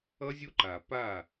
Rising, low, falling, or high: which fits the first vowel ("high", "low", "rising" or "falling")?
high